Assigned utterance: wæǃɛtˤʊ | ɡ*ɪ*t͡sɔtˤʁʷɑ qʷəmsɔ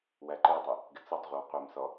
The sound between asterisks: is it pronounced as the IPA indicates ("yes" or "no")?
yes